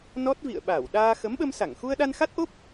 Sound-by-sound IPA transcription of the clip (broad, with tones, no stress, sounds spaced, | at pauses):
n ɔ˦˥ t̚ v ḭ˧˨ ə̯ ɓ aː˧˩ w ɗ aː˧ x ə˨˦ m ɓ ə˧ m s a˧˩ ŋ x u˧ ə̯ ɗ a˧ n x a˦˥ t̚ ʔ o˦˥ p̚